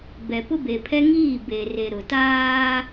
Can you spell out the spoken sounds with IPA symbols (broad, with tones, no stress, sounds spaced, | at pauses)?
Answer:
b ɛ˨ p ʊ˦ b e˨ pʰ ɛ˦ ŋ iː˦˨ b eː˨ r e˨ ɾ ʊ˨ t aː˦